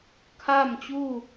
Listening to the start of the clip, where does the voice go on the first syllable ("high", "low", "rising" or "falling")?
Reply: falling